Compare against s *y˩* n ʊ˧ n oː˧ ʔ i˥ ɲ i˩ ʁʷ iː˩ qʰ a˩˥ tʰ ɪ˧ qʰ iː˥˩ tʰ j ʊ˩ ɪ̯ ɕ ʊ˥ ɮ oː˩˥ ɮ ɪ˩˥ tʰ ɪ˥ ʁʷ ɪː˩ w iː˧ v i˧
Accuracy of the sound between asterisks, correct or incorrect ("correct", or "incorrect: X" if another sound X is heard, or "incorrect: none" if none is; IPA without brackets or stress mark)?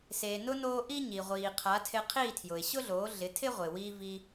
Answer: incorrect: e˩